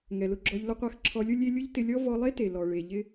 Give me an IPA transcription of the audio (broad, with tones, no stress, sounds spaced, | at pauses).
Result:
ŋ ɛ˨ l ʊ˧ ɡ͡ǁ ɔ˧ ʎ l ʊ˦ qʷ a˦ x ǁʰ ɔ˧ lʲ ʊ˦ lʲ e˦ lʲ ʊ˦ ʎ t ɪ˧ lʲ ɔ˦ v ɔ˧ lˠ e˦ t e˨ l ɔ˨ ɭ e˨ ʎ ɪ˦